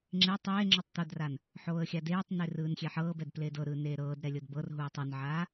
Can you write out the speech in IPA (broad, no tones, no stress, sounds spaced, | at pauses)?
ŋ͡ǁ e tˤ eː ŋ͡ǁ ɔ tˤ t̪ o d r a n | ħ oː ə̯ xʲ a d eː tˤ n e r ɯː n xʲ e ħ ɤː b ɛ d p l eː d ɤ ɾ ɯː n eː ɾ ɤː d ɾ ɛ lʲ ɤ d b ɤ r ɦ uː tˤ o n ʕ aː